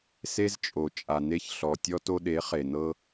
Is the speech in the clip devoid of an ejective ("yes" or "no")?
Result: no